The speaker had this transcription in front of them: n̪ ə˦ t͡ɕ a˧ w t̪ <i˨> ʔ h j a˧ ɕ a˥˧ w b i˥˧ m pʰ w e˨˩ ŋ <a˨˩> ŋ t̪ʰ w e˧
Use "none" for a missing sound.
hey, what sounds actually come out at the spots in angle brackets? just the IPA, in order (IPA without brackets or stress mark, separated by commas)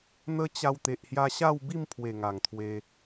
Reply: e˨, a˨˩